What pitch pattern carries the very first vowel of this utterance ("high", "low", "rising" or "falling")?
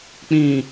low